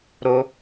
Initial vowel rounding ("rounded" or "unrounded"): rounded